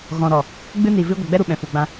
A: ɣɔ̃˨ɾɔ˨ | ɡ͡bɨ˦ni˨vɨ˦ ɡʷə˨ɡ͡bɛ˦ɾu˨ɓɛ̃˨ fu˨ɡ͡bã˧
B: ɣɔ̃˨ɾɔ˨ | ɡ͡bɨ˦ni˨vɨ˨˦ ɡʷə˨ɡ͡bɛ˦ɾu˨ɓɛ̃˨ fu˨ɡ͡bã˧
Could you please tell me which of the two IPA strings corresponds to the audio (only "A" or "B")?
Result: A